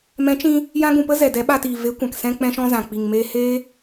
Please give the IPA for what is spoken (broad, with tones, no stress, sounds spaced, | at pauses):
m ɛ̃˨˦ t͡ʃ ĩ˧ | j ã˦ ɡ ũ˧ p ə˦ z ɛ˨ d ɛ˨˦ ɓ a˧ t iː˨ v e˨˦ kʷ ã˨ k s ɛ̃˧ k͡p ɛ̃˧ ʃ ɔ̃˧ z ã˨ k͡p i˨ ŋ m eː˧ h eː˦